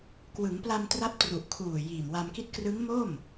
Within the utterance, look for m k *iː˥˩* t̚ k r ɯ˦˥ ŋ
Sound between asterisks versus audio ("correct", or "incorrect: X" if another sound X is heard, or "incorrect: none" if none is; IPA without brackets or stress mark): incorrect: i˥˩